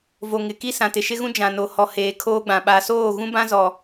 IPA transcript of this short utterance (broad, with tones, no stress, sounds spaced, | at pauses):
v o˨ ŋ ɪ˨ k i˦ s ã˨ t ɪ˨ ʃ ɪ˦ ɣ ũ˦ d͡ʒ ã˨ n o˨ h ɔ˨ h eː˨ kʰ oː˦ ɡ͡b ã˨ ɓ a˨ s oː˦˨ ɣ ũ˦ b ã˦ z ɔ˨